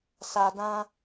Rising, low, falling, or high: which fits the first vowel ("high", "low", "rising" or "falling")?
low